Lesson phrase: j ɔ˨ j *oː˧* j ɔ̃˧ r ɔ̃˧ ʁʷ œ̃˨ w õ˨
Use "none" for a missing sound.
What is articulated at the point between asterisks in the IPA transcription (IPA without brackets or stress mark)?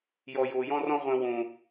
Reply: oː˨